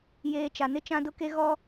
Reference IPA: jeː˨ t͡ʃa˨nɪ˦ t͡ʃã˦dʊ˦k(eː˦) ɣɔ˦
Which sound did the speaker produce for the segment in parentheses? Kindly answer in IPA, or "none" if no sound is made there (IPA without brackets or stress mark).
e˦